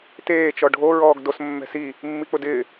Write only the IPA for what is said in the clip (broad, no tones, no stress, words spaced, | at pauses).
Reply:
teː t͡ʃɔɖʱo ɹɔːɡdos mːɛ̤si | mːik͡pʊdɪː